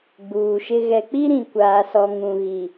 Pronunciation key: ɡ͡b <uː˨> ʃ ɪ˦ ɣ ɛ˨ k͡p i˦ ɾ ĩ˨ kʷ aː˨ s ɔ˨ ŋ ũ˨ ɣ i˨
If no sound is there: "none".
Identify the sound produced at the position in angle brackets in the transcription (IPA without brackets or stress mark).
uː˨